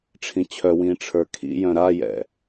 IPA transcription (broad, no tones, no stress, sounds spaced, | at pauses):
ʈ͡ʂʰ ĩ t͡ɕʰ œ w ĩː ʈ͡ʂʰ ə˞ kʰ ḭ j œ̃ ɾ a j ɛ̰